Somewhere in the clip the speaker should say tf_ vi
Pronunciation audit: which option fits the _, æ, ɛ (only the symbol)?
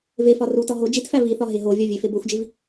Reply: æ